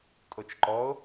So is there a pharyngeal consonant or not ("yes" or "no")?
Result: no